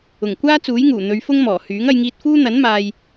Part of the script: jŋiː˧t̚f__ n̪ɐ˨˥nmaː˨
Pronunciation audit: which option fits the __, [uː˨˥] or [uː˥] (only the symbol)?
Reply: uː˥